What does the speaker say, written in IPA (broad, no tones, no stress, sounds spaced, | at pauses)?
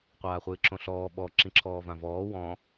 qʷ aː χʷ ɨː ǁ õ ɬ ɔː ɓ ɔ ǁ ĩ ǁʰ ɔː v ã v ɔː w ɔ̃